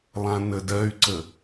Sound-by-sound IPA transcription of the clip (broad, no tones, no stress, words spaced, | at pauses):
lˠãnədɜy̯ǀə